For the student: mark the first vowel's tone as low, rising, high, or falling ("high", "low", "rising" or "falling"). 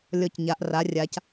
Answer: low